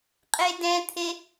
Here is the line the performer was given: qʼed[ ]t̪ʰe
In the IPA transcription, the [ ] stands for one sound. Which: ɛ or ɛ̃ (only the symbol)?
ɛ̃